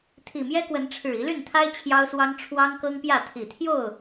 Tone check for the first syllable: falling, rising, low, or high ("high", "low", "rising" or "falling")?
low